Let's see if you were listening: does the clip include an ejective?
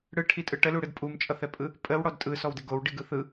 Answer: yes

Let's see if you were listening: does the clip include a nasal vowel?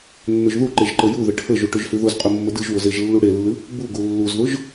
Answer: no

